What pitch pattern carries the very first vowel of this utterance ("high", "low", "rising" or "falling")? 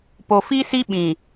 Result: low